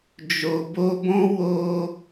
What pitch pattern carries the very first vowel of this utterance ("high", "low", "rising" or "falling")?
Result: low